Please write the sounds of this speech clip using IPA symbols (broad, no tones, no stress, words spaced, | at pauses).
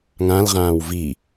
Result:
ŋãlʁãːw vi